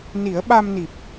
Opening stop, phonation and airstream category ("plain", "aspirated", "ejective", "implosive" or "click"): implosive